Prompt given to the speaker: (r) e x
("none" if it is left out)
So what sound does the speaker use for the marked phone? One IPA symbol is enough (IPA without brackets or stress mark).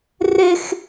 r